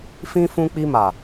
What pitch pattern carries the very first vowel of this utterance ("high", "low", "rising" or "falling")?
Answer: high